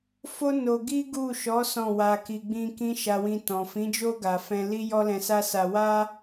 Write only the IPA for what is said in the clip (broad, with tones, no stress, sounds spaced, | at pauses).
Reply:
f o˦ n o˧ ɡ i˦ ɡ u˦˨ ʃ ɔ˨˦ s ɔ̃˦˨ w a˧ k i˧ ɡ͡b ĩ˦ k ĩ˦ ʃ a˧ w ĩ˧ t ɔ̃˨ f ĩ˨˦ d͡ʒ o˦ ɡ a˧ f ɛ̃˧ l i˦ j ɔ˦ l ɛ̃˧ s a˦ s a˧ w a˦